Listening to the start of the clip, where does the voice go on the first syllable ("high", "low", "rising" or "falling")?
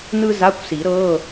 high